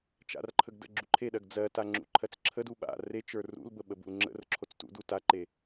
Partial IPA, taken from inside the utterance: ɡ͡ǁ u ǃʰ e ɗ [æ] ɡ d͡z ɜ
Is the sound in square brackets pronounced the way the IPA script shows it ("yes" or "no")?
no